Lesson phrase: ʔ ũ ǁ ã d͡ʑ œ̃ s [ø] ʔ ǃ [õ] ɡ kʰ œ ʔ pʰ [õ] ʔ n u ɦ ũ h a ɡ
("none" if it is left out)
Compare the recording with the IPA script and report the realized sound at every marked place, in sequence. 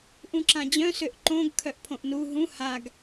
ø, õ, õ

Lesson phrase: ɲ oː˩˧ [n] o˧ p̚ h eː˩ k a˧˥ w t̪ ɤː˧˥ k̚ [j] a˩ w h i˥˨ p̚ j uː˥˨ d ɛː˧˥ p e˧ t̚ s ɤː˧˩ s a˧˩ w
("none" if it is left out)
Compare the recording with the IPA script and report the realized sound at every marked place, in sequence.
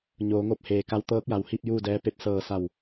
ŋ, j

